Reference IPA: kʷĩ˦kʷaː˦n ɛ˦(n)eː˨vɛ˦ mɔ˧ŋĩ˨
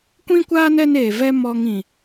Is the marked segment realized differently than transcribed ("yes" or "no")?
no